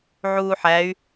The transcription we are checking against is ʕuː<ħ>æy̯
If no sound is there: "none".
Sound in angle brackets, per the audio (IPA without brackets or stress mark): ħ